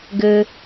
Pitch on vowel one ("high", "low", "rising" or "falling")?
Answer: high